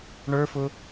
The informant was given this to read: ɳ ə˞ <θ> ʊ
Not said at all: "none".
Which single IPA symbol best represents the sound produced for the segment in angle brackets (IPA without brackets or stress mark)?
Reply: f